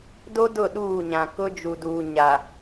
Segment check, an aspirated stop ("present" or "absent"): absent